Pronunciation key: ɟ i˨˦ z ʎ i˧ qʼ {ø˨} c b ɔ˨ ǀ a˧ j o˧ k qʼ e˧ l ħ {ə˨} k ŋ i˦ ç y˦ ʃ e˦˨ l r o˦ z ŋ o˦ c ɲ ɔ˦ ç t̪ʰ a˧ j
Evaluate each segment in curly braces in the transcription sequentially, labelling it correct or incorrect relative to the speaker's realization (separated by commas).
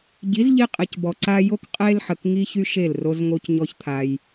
incorrect, correct